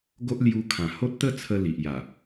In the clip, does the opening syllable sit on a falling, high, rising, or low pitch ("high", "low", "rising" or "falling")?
high